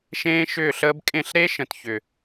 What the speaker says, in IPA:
ʃ ẽː˦ ʃ ʏː˦˨ ɬ əː˦ b kʼ ẽ˦˨ ɬ ɾ e˦ ʃ ə̃˨ t ç ʏ˨

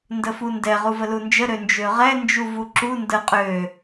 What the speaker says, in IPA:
n d ə f u n d ɛ ʁ u v ə l u n d͡ʒ ə ɾ ø n d͡ʒ ø ʁ ɛ n d͡ʒ u v u ǁ u n d ə qʼ ø

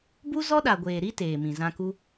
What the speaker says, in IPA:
b u˦ z ɔ˦ ɗ a˨ ɡʷ eː˨ ɾ i˦ t eː˨ m ĩ˨ z ã˧ k u˦

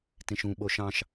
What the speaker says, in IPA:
t ẽ ʃ ũ ɓ o ʃ ɑ̃ ʃ

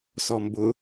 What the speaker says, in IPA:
s ɔ m b ʊ

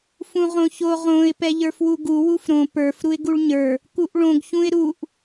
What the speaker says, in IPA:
f ũ ʁ õ ç o ʁ õ ɪ̯ p ɛ ʎ ə˞ f w u ɡ u w u f ɾ õ p ə˞ f ɾ u ɪ̯ ɡ u ɭ ɲ ə˞ | k u ʔ ɭ õ ɡ ç ũ ɪ̯ ɾ u ʔ

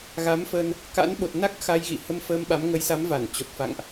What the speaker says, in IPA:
ɣ a˨˦ m f ə˧ n | k a̰˧˥ n ɓ o˨˩ t̚ n a˦˥ k̚ x a˧ j ɣ ḭ˧˨ h ə˧ m f əː˧ m ɓ a˨˦ m ŋ ə˨˦ j s a˨˦ m v a˧˩ n t͡ɕ o˨˩ t̚ f a̰˧˨ ŋ ʔ

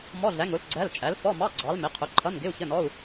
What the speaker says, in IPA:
m ɔ˧˥˧ ɮ æ˨˥ ŋ ʊ˨˥ l ɡ͡ǀ æ˧˥˧ l t͡ʃʼ æ˨˥ l f ɔ˧˥˧ m ɑ˧˥˧ ɡ͡ǀ ɑ˨˥ l m ɪ˨˥ qʰ ʊ˨˥ ǃʰ ʌ˧˥˧ n ɡ ɪ˧˥˧ u̯ ç ə˧˥˧ n ɔ˧˥˧ u̯

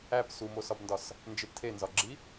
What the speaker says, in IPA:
æ p s u m o s ɒ b n d ɒ s | n d͡ʒ e p tʰ e n z ɒ ɡ͡ǁ i

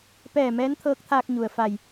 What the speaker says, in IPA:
p ɛː˧˩ m ɛː˧˥ n t̪ʰ ɤː˧˥ k̚ t̪ʰ aː˧ k̚ ɲ u˩ ə̯ f a˧˩ j

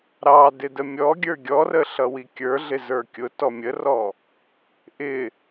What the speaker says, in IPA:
ɾ ɑ d ɪ d ə mʲ ɔ ɡʲ ə˞ ɡʲ ɔ r ə ɬ ʌ w i kʲ ə˞ ɮ ɪ z ə˞ kʲ ʊ t ɔ mʲ ə r ɔ | ʔ ɪ

